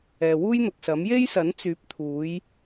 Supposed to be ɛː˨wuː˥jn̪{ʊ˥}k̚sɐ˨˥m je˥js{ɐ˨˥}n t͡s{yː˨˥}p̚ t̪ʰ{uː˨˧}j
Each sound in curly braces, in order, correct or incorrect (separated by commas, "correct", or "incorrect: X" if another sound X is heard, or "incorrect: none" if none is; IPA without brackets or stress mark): incorrect: ʊ˨, correct, correct, correct